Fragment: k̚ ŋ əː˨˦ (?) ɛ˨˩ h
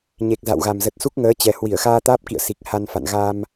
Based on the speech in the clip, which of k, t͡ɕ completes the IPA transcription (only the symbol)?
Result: t͡ɕ